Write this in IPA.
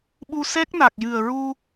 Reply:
ɓ u˧ s ɛ˦˥ k̚ n a˨˩ k̚ j ɨ˨˩ ə̯ ɹ u˧

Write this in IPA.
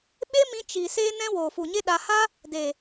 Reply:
ɓ e˦ m ĩ˧ t͡ʃ i˨ s eː˦ n ɛ̃˦ w oː˨ f u˨ ɲ e˦ ɗ a˧ h a˦ | d e˨

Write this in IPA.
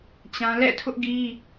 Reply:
t͡ɕ ã˦ l ɛ̰˦˨ tʰ ʊ˦ ʔ ɡ i˦

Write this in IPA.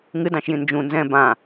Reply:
ŋ ɨ d ɑ̃ ʃ j ĩ n d͡ʒ ũ n z ɛ̃ b ã

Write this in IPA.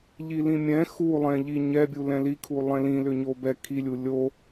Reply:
ʎ i l ĩ mʲ ɛ̃ x u lˠ ɛ̃ ʎ i ɲ ɛ bʲ u l ɛ̃ l i kʰ u lˠ ɛ̃ l ĩ l ʏ ɲ o b ɛ kʰ i lʲ u lʲ o

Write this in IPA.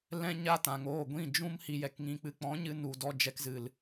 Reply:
l ɛ̃˦ ɲ a˦ t ã˨ ŋ oː˦˨ ɡʷ ĩ˦˨ d͡ʒ ũ˦ m h i˨ j ɛ˨ k ŋ ĩ˨ k͡p ɨ˨ k͡p ɔ̃˨˦ ɲ ɨ˧ n u˨ d ɔ˧ d͡ʒ ɛ˧ k z ɨ˨ l

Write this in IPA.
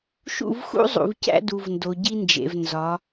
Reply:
ʃ ṵ˦˨ v x ṵ˦ zˤ ṵ˨ v c æ̰˦ d u˨ v n d o˨ ɟ i˦ n d͡ʒ ḛ˨ v n z ɒ˨˦

